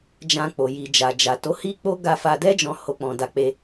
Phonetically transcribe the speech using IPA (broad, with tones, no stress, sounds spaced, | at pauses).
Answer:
d͡ʒ ã˧ k͡p o˧ j i˧ d͡ʒ a˨ d͡ʒ a˨ t o˨˦ h i˦ k͡p o˦ ɡ a˧ f a˧ d ɛ˦ d͡ʒ ɔ̃˧ h o˧ k͡p ɔ̃˧ d a˧ k͡p e˧